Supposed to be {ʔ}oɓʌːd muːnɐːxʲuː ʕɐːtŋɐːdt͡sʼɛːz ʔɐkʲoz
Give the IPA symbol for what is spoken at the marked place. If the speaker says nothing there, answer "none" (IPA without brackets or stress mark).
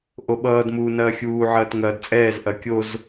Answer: ʔ